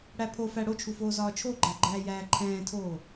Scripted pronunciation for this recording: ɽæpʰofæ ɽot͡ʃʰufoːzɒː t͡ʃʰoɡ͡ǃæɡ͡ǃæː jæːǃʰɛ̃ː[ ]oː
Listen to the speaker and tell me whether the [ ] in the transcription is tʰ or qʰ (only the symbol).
tʰ